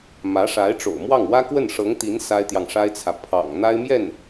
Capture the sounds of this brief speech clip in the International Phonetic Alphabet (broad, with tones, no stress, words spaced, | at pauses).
mä˧˥ʂa˧˥ɪ̯ʈ͡ʂo̰˨˩ʊ̯mwɑ˥˩ŋ wä˥kwə˥˩nʂɤ˧˥ŋt̪i˧˥n sa˥ɪ̯t̪jɑ˨ŋʂa˥ɪ̯t͡sʰä˨ pʰɑ̰˨˩ŋ n̪a˥ɪ̯mjɛ˥˩n